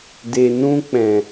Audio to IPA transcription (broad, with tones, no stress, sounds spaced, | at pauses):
d e˨ n ũ˧ k͡p ɛ̃˨